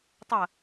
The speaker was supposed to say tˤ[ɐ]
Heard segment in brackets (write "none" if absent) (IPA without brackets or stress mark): ɐ